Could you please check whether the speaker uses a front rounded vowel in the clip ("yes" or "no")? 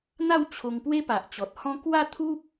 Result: no